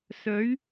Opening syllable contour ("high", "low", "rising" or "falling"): rising